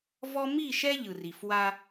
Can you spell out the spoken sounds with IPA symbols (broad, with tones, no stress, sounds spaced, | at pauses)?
v ɔ˦ m i˦˨ ʃ ɛ˦ ʎ ɯ˨ r i˨ f w a˦